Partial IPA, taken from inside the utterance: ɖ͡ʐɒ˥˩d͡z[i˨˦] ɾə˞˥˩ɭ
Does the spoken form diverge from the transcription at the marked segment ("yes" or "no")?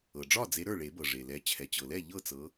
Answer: yes